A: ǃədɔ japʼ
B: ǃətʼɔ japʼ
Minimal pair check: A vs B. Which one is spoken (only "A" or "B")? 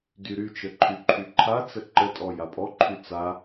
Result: B